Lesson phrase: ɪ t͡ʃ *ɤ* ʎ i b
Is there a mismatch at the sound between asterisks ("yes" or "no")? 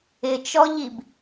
yes